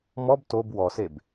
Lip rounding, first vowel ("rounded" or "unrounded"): rounded